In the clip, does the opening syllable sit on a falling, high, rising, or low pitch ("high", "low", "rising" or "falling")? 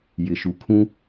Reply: low